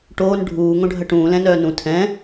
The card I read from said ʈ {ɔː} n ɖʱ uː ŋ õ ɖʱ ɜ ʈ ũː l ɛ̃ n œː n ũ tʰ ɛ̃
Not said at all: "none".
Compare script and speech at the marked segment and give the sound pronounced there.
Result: oː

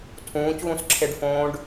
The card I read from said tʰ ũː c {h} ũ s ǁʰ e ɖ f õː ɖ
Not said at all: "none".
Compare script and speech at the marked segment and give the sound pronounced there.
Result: ɣ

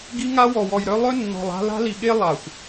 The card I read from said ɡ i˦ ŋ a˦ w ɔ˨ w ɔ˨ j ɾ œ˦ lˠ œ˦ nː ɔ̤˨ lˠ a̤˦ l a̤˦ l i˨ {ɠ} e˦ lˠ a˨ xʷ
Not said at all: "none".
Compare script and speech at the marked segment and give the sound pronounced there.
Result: ɠ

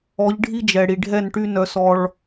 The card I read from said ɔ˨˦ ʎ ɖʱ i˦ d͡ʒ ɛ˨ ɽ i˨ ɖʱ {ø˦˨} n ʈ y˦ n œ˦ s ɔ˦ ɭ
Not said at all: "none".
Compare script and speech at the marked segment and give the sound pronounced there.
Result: ɛ˦˨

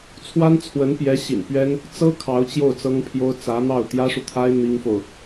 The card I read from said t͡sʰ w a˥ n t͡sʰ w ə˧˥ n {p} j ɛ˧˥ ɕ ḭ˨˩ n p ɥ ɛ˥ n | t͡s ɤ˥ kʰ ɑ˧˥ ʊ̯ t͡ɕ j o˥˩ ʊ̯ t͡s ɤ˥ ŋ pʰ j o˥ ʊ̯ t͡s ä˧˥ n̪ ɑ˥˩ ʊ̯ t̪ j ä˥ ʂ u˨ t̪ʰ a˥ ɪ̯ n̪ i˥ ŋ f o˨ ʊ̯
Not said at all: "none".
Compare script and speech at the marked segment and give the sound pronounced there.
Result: p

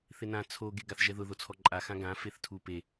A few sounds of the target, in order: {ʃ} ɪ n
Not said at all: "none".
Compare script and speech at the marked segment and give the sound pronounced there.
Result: θ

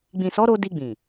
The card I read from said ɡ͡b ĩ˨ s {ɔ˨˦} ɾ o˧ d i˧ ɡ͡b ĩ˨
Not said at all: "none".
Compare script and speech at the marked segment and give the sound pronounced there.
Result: ɔ˨˦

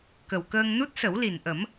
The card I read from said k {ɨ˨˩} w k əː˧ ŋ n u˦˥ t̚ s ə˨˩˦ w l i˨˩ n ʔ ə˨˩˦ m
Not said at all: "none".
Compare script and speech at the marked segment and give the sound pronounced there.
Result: ə˨˩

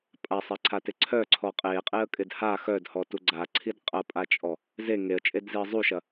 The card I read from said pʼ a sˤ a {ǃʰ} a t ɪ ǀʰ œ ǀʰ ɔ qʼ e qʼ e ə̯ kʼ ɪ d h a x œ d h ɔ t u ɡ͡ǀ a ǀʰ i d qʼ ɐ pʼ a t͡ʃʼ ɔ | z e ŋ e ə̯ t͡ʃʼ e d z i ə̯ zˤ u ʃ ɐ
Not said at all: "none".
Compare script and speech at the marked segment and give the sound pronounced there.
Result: ǀʰ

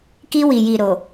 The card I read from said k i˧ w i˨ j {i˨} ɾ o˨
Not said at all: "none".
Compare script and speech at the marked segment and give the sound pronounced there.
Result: i˨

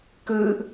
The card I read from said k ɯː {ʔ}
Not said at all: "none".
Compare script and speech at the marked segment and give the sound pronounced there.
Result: ʔ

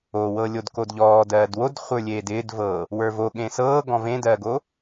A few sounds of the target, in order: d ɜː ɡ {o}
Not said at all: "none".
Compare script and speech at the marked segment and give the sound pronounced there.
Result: o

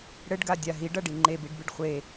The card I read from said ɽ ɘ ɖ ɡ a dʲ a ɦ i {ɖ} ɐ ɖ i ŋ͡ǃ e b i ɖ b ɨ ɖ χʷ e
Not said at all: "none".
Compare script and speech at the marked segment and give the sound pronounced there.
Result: ɖ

